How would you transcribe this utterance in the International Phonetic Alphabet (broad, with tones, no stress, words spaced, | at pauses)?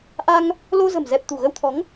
ʔa˧ŋ | lo˧zə̤˨˩mzɛ˨˩p̚ t̪ṳ˨˩ɣə˧wt̪ʰɔ˨˦ŋ